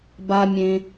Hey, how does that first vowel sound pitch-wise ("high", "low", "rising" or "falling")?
low